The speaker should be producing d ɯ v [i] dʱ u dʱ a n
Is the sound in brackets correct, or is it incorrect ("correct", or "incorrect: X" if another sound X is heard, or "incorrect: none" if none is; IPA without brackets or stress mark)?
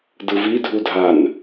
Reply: correct